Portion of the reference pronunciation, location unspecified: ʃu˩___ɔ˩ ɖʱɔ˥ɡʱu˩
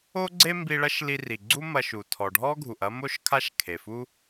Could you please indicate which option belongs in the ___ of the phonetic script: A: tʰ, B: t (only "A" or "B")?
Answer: A